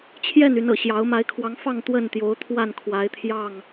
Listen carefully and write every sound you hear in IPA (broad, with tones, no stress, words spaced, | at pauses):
t͡ɕʰjɛ˥˨ny˨˦n ɤ̰˨˩ ɕjɑ˨˦ʊ̯ ma˨˦ɪ̯kʰwɑ˨˦ŋ fɑ˥˨ŋ t̪wə˥˨nt̪jo˨˦ʊ̯t̪ʰwa˥˨n kʰwa˨˦ɪ̯t̪ʰjɑ˥˨ŋ